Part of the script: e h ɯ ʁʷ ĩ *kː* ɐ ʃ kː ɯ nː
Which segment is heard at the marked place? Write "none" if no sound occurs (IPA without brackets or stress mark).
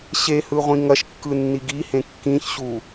ŋ